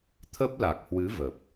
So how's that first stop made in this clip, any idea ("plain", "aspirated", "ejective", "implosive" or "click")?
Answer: aspirated